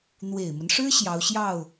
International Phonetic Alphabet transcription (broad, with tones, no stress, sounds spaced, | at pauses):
n̪ w e˨˩ ɪ̯ m ə˦ n ʂ ɻ̩˥ ɕ j ɑ˧˥ ʊ̯ ɕ j ɑ˥˩ ʊ̯